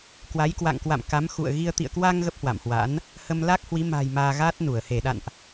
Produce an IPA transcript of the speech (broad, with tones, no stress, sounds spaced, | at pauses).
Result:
k w a˨˦ j k w a̰˧˨ ŋ k w a̰˧˨ m k a˨˦ m x ṵ˧˨ ə̯ ɣ i˧ ə̯ t̪ ḭ˧˨ ə̯ k w a˧ ŋ ɣ ə˦˥ p̚ h w a̰˧˨ m h w a̰˧˥ n | h ə˧ m l a˦˥ k̚ h w i˨˦ m a̤˨˩ j m aː˧ ɣ aː˦˥ t̚ n u˧˩ ə̯ h e˧˩ ɗ a̰˧˨ n ʔ